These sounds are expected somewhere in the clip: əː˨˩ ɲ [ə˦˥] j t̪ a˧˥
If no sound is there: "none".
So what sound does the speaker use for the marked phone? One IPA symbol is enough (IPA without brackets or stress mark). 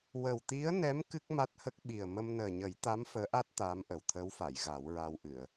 ə˨˩˦